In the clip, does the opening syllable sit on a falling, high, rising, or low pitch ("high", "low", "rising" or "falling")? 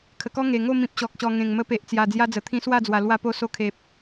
low